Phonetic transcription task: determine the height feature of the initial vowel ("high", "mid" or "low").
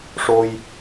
mid